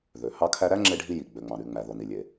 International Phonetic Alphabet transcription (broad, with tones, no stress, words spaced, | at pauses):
ðø˩ hɑ˥kʰæ˥ ɾæ˥ ŋ͡ǁe˥ɖʱi˥ ji˩ ɡ͡bø˩ŋ͡mɑ̃˩ɾy˩ŋ͡mæ˩ ðo˩ni˩lʲe˩